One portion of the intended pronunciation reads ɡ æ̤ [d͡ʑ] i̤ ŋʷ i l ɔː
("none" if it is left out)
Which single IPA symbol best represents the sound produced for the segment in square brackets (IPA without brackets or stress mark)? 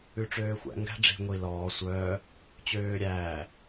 ɖ͡ʐ